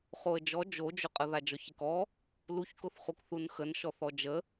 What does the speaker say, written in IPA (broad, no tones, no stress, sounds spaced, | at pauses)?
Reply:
χ o ə̯ d͡ʒ ɔ d͡ʒ o d͡ʒ ʊ qʼ ə ð a d͡ʒ ɔ ç ɪ k ɔ | l u ç k ʊ θ χ u k θ u n x ə n ʃ ɔ θ ɔ d͡ʒ ə